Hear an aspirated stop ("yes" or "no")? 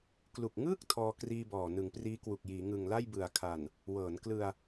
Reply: yes